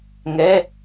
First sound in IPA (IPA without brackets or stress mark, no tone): ŋ